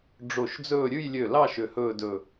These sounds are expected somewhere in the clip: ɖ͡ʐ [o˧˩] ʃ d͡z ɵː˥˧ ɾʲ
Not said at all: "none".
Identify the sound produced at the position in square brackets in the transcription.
o˧˩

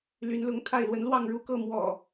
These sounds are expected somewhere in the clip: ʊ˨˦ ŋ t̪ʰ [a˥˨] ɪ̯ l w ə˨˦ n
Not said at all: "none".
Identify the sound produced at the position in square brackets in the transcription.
a˥˨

